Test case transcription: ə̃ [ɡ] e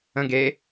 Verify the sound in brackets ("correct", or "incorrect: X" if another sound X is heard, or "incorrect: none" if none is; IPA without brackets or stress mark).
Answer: correct